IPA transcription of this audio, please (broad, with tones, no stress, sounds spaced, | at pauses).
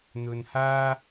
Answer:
n̪ ɵ˨ n h aː˥